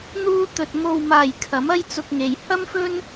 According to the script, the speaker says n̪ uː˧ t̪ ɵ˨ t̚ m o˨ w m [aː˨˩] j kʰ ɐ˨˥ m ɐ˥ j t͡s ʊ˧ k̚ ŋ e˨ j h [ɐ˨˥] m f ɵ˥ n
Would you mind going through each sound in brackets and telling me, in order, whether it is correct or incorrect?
correct, incorrect

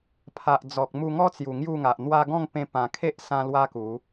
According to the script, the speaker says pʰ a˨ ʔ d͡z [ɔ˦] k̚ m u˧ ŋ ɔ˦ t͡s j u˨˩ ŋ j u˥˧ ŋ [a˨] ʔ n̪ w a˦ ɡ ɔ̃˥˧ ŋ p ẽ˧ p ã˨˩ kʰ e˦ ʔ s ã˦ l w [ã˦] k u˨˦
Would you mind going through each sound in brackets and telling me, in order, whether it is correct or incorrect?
incorrect, correct, incorrect

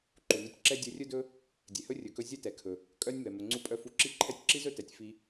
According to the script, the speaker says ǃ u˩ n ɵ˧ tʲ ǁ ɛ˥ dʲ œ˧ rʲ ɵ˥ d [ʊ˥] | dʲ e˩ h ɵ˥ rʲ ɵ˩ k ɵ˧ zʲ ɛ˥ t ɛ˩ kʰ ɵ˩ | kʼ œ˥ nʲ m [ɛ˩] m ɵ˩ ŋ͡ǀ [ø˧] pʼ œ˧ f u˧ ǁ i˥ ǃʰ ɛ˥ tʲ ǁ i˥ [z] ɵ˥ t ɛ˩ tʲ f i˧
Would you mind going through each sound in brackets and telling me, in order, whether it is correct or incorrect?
incorrect, correct, incorrect, correct

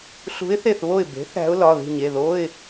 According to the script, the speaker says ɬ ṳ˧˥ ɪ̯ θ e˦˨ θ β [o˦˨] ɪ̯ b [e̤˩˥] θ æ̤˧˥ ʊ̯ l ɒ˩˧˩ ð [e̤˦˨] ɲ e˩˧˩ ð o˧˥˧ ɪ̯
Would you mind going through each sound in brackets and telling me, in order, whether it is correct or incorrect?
correct, correct, incorrect

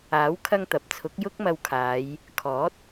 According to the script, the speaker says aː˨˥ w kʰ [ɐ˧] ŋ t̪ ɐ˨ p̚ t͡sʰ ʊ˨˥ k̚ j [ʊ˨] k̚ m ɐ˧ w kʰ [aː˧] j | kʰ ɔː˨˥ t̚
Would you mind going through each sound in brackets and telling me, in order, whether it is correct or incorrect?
correct, incorrect, incorrect

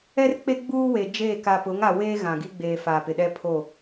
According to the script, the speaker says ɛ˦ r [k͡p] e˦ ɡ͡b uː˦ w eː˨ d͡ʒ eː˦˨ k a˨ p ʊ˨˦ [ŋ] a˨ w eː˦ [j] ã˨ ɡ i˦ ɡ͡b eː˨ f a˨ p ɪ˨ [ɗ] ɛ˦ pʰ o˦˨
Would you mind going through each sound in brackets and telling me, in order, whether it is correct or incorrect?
correct, correct, incorrect, correct

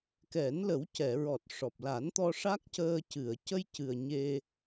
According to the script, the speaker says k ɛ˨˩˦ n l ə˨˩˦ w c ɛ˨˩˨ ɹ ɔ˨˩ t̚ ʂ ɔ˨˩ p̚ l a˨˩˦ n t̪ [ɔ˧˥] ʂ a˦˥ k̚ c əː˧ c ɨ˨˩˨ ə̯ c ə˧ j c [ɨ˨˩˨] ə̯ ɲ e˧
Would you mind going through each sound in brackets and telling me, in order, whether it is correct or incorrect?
incorrect, incorrect

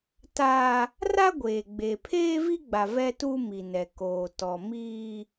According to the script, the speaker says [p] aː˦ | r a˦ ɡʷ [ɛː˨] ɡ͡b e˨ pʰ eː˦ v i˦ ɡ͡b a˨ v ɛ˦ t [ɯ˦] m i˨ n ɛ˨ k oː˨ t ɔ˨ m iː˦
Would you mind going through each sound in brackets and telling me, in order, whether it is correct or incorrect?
incorrect, incorrect, incorrect

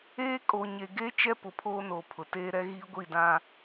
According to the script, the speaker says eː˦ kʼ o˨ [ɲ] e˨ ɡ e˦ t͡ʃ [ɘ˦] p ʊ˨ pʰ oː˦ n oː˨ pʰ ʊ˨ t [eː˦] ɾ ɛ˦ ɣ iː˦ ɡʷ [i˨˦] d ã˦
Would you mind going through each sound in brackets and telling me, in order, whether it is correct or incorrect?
correct, incorrect, correct, incorrect

